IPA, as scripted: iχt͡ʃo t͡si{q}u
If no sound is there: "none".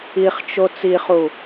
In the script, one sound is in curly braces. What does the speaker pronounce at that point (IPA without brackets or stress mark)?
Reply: χ